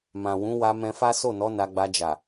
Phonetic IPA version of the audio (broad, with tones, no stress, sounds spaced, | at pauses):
m ã˨ w ũ˨˦ w a˧ m ɛ̃˧ f a˦ s o˦˨ n ɔ˨˦ n a˧ ɡ͡b a˧ d͡ʒ a˨